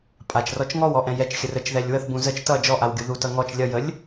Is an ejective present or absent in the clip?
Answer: present